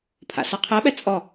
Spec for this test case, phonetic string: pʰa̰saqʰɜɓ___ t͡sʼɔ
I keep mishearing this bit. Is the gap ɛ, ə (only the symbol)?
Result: ɛ